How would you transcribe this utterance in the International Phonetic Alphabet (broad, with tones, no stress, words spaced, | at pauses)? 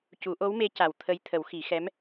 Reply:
cu˨˩˦ʔo˧˥wme˧˥ ca˨˩wt̪ʰə˧j t̪ʰə˨˩˦wxi˨˩˦ xɛ˧˥m